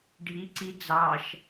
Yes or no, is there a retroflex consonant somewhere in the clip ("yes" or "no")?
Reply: yes